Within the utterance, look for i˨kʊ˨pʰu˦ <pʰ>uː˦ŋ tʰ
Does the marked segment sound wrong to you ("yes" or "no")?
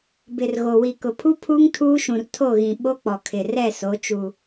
no